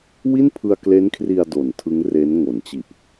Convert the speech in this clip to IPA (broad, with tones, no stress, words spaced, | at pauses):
wi˥˩npʰɯ˧a̯kle˦˥nkʰri˧a̯ do˨˩ntʰɯ˦˥ŋre˦˥n ŋo˩˦nt͡ɕi˨˩ʔ